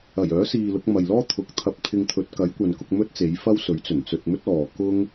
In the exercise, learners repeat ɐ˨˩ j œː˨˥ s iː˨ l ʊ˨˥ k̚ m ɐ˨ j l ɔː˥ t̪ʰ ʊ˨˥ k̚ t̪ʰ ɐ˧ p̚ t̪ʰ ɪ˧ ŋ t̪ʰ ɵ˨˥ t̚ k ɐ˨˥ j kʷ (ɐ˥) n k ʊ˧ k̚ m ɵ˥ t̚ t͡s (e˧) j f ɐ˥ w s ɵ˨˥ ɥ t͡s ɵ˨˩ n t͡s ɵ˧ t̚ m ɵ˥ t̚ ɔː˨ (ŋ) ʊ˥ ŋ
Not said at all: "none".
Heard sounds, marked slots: ɐ˨, e˨˥, k

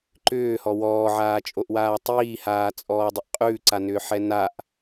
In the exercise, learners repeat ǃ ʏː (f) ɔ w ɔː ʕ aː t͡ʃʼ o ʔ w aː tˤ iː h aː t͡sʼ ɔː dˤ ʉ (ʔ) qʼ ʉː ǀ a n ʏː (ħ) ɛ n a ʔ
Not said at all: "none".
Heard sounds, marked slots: h, ʔ, ħ

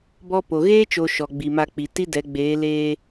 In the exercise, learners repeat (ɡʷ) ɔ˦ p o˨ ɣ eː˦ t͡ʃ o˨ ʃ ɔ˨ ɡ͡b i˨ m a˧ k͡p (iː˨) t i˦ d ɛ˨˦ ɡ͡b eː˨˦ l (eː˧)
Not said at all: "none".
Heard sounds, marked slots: b, i˨, eː˧

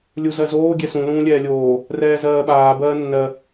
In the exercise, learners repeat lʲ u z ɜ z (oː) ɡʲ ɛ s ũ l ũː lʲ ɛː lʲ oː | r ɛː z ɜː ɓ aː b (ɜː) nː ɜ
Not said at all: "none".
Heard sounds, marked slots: oː, ɜː

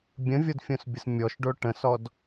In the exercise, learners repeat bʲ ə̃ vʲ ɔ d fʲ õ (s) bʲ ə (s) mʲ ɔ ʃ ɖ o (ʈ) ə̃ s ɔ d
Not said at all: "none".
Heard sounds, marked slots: s, s, ʈ

